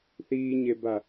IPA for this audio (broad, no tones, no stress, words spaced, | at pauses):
θiːɲeba